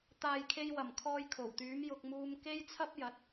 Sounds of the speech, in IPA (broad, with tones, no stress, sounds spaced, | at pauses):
t̪ aː˨ j kʰ e˧ j w ɐ˨˩ m kʰ ɔː˧ j kʰ o˨˩ w t̪ yː˨˥ m j ʊ˧ k̚ m uː˧ m k e˥ j t͡sʰ ɐ˥ p̚ j ɐ˨˥ t̚